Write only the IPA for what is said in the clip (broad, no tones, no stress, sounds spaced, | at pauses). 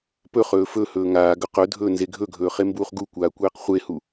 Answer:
p ɵ χ ɵː f ɵ h ɵː ŋ aː ɡ ɵ q ɵ dʱ ɵː n z e ɡʱ ɵ ɡʱ ɵː χ e m b uː χ ɡ u kʷ aː kʷ eː q χʷ e h u